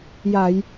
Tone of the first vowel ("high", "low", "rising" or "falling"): low